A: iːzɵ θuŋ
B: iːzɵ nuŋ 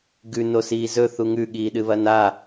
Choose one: A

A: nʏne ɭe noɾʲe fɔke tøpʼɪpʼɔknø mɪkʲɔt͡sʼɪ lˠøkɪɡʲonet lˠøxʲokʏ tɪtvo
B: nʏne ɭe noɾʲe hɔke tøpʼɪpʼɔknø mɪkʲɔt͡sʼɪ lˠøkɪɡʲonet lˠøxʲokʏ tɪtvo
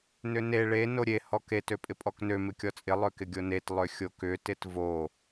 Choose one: B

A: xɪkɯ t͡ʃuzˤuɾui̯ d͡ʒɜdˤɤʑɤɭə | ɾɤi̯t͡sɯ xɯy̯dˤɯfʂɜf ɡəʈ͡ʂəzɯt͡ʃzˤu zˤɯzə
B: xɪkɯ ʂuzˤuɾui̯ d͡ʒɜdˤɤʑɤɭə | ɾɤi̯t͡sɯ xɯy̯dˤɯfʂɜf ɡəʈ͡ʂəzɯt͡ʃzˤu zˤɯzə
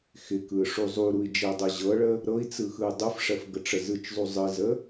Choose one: B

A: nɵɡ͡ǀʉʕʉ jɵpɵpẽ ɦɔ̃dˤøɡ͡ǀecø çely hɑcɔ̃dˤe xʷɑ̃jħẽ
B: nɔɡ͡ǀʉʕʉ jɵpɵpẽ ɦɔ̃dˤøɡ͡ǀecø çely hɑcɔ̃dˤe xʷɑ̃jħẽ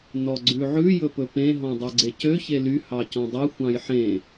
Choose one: B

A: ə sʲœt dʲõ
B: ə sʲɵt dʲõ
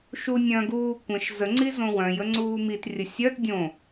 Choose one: A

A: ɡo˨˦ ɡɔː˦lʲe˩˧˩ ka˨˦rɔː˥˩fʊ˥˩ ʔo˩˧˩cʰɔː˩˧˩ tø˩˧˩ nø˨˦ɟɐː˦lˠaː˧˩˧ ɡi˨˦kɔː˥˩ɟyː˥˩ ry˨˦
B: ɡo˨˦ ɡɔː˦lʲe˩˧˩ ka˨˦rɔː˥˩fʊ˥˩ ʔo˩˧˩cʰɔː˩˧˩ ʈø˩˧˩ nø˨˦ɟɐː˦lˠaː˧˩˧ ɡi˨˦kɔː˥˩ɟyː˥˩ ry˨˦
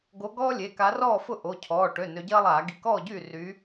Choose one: B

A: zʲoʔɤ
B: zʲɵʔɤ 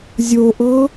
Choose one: A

